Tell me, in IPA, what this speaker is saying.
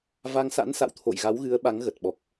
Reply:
va˧ŋsa̰˧˥nsa̰˧˨w t̪ʰo̰˧˨jɣa˨˦w ɣɨ˨˦ə̯ɓa˨˦ŋɣə˨˩t̚ ɓɔ˨˩k̚

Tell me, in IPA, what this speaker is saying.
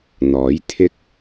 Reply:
n̪ɔː˨˥j t̪ʰɪ˥k̚

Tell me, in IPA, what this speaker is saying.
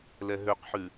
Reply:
lɛɦøqħʉ

